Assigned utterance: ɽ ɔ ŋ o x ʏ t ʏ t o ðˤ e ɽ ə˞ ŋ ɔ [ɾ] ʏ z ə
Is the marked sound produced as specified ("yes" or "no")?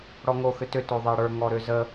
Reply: yes